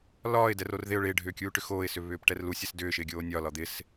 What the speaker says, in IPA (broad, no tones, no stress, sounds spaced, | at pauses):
l ɒː ɪ̯ d ɛ r o r ð ɪ ʊ̯ ɭ ɪː ɖʱ ʏː kʲ uː ʈ ʏ x oː ɪ̯ s ʏ β ʏː p ʈ ɛ r l u sʲ ɛ s d ʏː ʃ ɪː ɡʲ oː nʲ ɒ l ɒ d̪ ɪ s